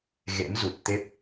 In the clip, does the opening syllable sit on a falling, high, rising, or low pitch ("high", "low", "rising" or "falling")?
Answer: rising